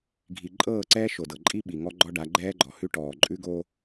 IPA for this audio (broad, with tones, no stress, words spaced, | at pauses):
ɡʱi˨ ǃʼɤː˦˨ǀɛː˦ ʃo˨dɤ˨ǃʼi˦ ɓi˨ŋɔ˦ ɡ͡ǃɔ˦ɖa˨˦ ɡ͡ǃɛː˦ɡ͡ǃɔ˨hʉ˦ ʈɔː˨ ǃʼʉ˦ɡo˦